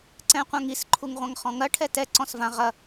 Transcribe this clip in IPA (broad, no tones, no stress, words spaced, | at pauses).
ǀɛ̃qʷãŋis ǃʰuŋʁʷãŋχɔ̃ŋɐ ʈʰɛtɛ ǀɔ̃svã ʁɐ